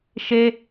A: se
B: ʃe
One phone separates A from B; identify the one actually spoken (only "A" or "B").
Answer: B